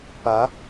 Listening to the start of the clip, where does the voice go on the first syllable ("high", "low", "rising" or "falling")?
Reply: rising